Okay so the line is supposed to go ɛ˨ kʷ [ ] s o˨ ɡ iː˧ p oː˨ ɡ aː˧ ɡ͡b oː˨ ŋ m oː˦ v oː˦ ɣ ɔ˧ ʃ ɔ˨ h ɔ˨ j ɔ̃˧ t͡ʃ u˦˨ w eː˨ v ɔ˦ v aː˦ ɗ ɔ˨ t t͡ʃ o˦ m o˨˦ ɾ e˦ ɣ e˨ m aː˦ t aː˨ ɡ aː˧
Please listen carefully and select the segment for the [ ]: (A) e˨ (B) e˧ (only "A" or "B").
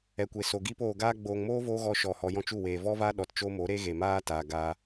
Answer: A